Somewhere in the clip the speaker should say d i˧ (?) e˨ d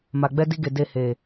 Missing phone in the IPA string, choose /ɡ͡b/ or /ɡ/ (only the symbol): ɡ